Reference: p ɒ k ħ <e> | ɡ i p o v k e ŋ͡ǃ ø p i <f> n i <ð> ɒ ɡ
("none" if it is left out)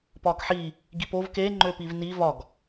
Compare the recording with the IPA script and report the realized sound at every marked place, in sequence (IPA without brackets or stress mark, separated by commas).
i, v, v